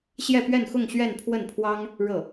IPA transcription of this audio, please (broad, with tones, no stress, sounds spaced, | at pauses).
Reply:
ɕ j ɛ˥˧ p ɥ ɛ˥˧ n x ʊ˥˧ ŋ ɕ ɥ ɛ˥˧ n pʰ w ə˥˩ n pʰ w ɑ˥ ŋ | ɻ ɤ˥˩